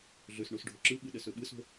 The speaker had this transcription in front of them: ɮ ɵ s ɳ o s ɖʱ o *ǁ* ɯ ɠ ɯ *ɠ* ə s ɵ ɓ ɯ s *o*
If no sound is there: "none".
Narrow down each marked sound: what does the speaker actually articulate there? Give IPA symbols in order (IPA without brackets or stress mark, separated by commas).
ǁ, ɗ, o̤